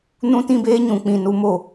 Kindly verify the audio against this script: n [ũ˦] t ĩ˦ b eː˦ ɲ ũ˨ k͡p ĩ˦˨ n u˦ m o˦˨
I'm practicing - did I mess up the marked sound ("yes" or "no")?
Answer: no